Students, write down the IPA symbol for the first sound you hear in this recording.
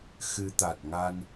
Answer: x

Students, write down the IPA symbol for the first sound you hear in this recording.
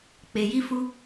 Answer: k͡p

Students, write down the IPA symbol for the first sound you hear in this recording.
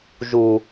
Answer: ʒ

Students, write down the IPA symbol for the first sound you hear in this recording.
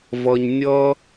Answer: v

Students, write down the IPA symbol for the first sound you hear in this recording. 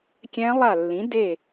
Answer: kʲ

